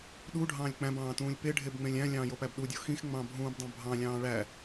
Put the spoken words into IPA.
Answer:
ɗ u ɖʱ ɑ̃ː lʲ k͡p æ̃ b ɑ̃ː t ũː lʲ p e ɖʱ e b ŋ͡m ẽ lʲ æ̃ lʲ ɑ̃ː j o p æ b ɗ u dʲ o x ĩ x ŋ͡m ɑ̃ bʱ ũː b dˤ ɑ̃ bʱ ɑ̃ lʲ ɑ̃ː ɭ æ

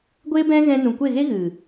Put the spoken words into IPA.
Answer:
ɡʷ eː˦ b ɛ̃˦ ɣ ɛ̃˧ n ũ˨ kʷ e˦˨ ɣ e˦ ɣ ɨ˨

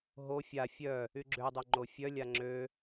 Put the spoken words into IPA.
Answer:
ɦ o fʲ a fʲ œ | y ɡ͡ǁ ø dˤ œ ŋ͡ǃ o fʲ œ lʲ a ŋ͡ǁ ø

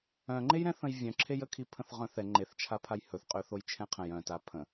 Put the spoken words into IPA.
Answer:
œ̃ ŋ͡ǃ e j ɾ ɛ̃ θ ə̃ j vʲ œ̃ ǁʰ e j ə kʰ i pʰ ə̃ θ ʁ œ̃ θ ɛ ŋ͡ǃ e θ t͡ʃʰ a pʰ a j h ɵ θ qʼ ø θ o j t͡ʃʰ ɛ̃ qʰ ə̃ j œ̃ t a pʰ ə̃

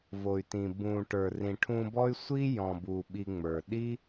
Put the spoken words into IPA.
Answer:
v o˨ y̯ t ĩ˨ b ũ˨ ʈ ə˞˨ r ĩ˨ ʈʰ ũ˧ b ɔ˦ y̯ sʷ i˦ j ɔ̃˨ b u˨ ɓ i˧ ŋ͡m ə˞˨ ɗ i˦

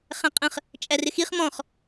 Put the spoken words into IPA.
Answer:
χ æ̃ qʼ ə̃ χ | t͡ʃʼ æ r ɪ x i χ m ɔ̃ χ

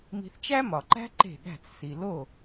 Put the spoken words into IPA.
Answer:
m i̤˧ θ t͡ʃ æ˥ m ɒ˩ ǃ æ̤˥ ǃ e̤˥˩ ɠ æ̤˥˩ t͡s s i˩ l o˥˩

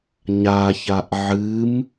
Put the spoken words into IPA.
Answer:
ɲ a ç a ʔ ʕ ɨ m

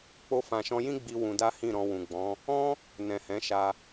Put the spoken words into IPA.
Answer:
k͡p o˧ f ã˨ ʃ ɔ̃˧ j ĩ˦ ɡ͡b i˧ w ũ˧ d a˦ h ĩ˦˨ ɾ ɔ̃˧ w ũ˨ ɡ͡b ɔ̃˨˦ | ɔ̃˦ | n ɛ̃˨ h ɛ̃˨˦ ʃ a˧

